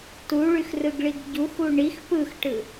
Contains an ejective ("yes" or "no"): no